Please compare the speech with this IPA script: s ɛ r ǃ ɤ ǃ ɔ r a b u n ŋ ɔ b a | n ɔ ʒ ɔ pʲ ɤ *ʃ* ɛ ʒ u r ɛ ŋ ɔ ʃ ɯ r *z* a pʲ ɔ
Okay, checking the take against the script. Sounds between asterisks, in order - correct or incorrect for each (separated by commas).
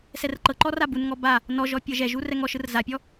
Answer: incorrect, correct